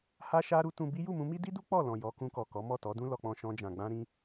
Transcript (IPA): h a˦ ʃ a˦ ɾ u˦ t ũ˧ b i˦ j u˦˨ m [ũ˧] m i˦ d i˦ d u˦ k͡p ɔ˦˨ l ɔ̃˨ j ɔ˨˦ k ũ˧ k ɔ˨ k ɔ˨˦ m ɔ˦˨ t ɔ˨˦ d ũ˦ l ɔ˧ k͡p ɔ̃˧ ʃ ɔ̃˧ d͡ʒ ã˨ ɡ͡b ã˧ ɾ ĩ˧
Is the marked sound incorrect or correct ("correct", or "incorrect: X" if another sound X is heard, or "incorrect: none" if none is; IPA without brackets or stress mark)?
correct